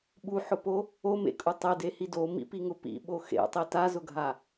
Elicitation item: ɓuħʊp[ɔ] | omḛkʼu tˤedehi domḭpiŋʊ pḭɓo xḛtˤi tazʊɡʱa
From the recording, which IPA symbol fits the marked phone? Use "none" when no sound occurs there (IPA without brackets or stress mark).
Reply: o